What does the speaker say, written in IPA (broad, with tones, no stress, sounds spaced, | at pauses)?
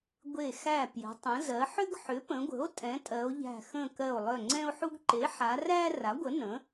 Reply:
ɡʷ e˧˩ x æ˧˩ p j ə̤˩˧ tˤ ə̃˩˧ z ɜ˩˧ ħ ʏ˦ ɡ ħ ʏ˩˥ p ə̃˩˧ ɡʷ ə̤˩˥ o̯ tʼ ɛ̃˩˥ tʼ ɜ˩˧ o̯ ʎ æ̤˧˩ x ə̃˧˩ k ɜ˧˩ o̯ lˠ œ˧˩ ŋ͡ǀ ɛ̃˦ o̯ ħ u˦ ɡ ǃ e˩˥ ħ a˩˧ r æ˦ r a˩˥ ɡʷ ə˩˥ n ə̃˩˥